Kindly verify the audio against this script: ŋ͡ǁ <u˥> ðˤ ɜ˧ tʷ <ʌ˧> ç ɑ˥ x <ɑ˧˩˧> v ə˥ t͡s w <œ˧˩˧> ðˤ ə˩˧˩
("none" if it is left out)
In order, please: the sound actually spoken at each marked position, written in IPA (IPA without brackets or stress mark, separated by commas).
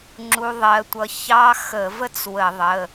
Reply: u˧, ʌ˧, ə˧˩˧, ə˧˩˧